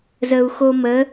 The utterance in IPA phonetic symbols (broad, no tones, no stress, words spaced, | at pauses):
zəu̯xomə